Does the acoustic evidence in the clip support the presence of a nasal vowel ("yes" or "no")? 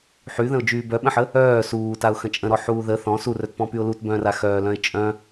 yes